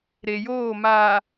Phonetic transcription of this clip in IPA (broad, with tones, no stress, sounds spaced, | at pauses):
ɾ e˨ j oː˦˨ m aː˨